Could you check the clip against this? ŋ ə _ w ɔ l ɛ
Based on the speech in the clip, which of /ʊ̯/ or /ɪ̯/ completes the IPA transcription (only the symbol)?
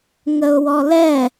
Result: ʊ̯